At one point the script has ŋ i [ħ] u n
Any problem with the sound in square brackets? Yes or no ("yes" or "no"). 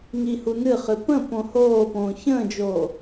yes